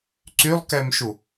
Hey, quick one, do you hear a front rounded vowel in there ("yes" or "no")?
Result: yes